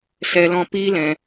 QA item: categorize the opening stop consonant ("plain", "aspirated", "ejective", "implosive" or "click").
plain